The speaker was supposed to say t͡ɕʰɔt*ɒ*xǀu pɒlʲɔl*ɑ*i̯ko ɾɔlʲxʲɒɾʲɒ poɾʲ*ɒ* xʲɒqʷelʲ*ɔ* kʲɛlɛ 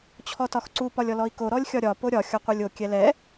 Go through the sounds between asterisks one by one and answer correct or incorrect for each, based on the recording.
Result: correct, incorrect: ɔ, correct, incorrect: o

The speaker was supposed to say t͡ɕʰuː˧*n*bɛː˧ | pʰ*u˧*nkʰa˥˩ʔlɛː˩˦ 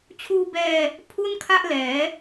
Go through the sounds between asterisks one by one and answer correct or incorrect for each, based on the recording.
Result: incorrect: none, incorrect: u˥˩

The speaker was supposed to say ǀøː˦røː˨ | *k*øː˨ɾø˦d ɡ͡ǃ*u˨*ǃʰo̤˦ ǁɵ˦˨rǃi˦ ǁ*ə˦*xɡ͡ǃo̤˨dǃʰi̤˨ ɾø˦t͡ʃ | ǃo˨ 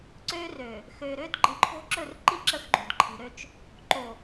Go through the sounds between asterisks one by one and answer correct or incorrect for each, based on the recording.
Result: incorrect: x, incorrect: ɯ˨, correct

